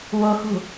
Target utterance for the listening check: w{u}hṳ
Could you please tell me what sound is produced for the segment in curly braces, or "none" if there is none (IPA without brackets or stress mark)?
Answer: o